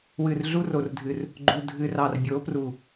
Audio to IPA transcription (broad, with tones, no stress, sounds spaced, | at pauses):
w ɨ˨ r ɮ u˦ r o˨ r dʱ ɨ˨ r | ɡ͡ǃ u˨ dʱ ɨ˨ r ɑ˨ r bʲ o˨˦ p r u˨